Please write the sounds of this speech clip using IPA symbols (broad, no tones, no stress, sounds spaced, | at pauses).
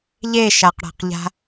ʎ e ʃ a q ɽ a̤ q ʎ a̤